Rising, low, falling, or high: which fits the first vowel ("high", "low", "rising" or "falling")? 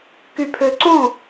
low